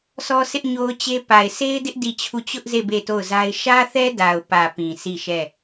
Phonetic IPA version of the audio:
s ɔ˦ sʰ ɪ˦ ʔ ɲ o˦ ʊ̯ t͡ɕ e˦ p a˨ ɪ̯ sʰ e˦ ɪ̯ d ɪ˦ ʔ d i˦˨ t͡ɕʰ u˦˨ t͡ɕ ʊ˦ ʔ z e˦˨ b e˦˨ t o˦˨ ʊ̯ z a˦ ɪ̯ ʃ ä˦ θ ɛ˦ d a˨ ʊ̯ p ä˨ p ĩ˨ sʰ i˦˨ ʃ ɛ˦˨

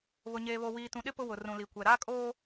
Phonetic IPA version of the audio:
β ʊ˨ ɲ eː˨ β o˨ w iː˨ t ũ˨ ɗ ɪ˦ p ʊ˦ w ʊ˨ r ũ˨ l i˨ kʷ ɛ˨ ɾ aː˦ kʼ oː˦

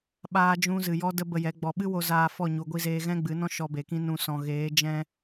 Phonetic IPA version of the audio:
ɓ aː˦ d͡ʒ ũ˦ z ɨ˨ j ɔ˦ d ə˦ b ə˧ j ɛ˨˦ ɡ͡b ɔ˨ ɓ ɨ˦ w o˧ z aː˧ f ɔ˦˨ ɲ u˨ ɡʷ i˧ z eː˧ ɣ ɛ̃˦ ɡ͡b ɨ˨˦ n ɔ̃˦ ʃ ɔ˧ b e˨ k ĩ˦ n ũ˧ s ɔ̃˨ ɣ eː˨˦ d͡ʒ ɛ̃˧

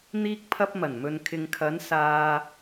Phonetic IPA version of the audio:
n̪ iː˧ k̚ pʰ ɐ˧ p̚ m ɐ˨˩ n m ɵ˨ n kʰ ɪ˨ ŋ kʰ ɐ˨˥ n s aː˧

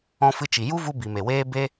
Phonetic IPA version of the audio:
ɔ̃˧ f ɨ˧ t͡ʃ i˨ j u˦ v u˧ b i˨ m e˨ w eː˦ b e˦

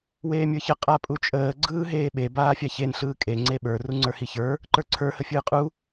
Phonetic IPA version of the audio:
w eː mʲ ə˞ ç ə qʼ a pʼ u t͡ʃʼ əː ɡ͡ǀ ɯː ɦ eː ɓ e b aː fʲ a ç e n ɬ ɯː kʼ e ŋ͡ǀ e ɓ ə˞ r u ŋ͡ǀ ə˞ h i ç ə˞ | ǃ ə˞ ǀʰ ə˞ h ə fʲ ɯː qʼ u

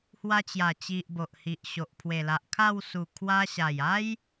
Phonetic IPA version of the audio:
h w a˧ t͡ɕ j a˨˩ t͡ɕ i˨ ʔ b o˨ ʔ h i˨ ʔ ɕ o˨ ʔ pʰ w e˨˩ l a˨ ʔ kʰ a˥˧ w s u˨˩ kʰ w a˧ ɕ a˨˩ j a˦ j

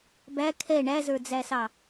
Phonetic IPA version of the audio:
b æ kʰ ɛ ɳ æ z ə˞ d͡z æ s ɑ

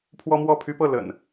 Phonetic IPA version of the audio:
pʰ w ɔ˦ m w ɔ˥˨ pʰ y˦ p ɤ˥˨ l ə̰˨˩ n

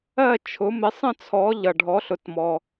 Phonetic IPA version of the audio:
ɜ˥˨ t͡ʃʰ ʊ˩˥ m ɪ˩˥ sˤ ə̃˥˨ t͡sʰ ɔ˩˥ ʎ ʌ˩ ɖʱ ɔ˩˥ ɬ ʊ˩ t m ɔ˩

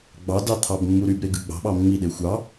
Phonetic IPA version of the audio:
ɡ͡b ɑ d ɑ t̪ʰ ɑ b mː u ɾ y b ɾ e ɡ ɯ ɡ͡b ɑ̤ ɓ ɑ mː i ɗ e xʷ ɑ

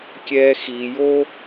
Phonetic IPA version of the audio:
kʲ ɛː˦ x i˨ j o˦

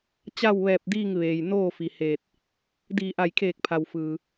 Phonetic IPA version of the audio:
t͡ɕ a˥˨ w ʋ ɛː˧˩ p̚ d iː˥˨ ŋ ʋ eː˩ j n oː˥˨ f i˩ h eː˧˩ t̚ | d iː˧˩ ʔ a˧˩ j kʰ eː˧˩ k̚ pʰ a˩ w f ɯː˩

